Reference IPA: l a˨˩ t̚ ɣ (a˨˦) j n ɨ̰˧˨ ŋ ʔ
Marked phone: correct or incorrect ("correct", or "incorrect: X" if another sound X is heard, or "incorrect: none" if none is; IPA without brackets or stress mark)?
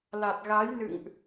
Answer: correct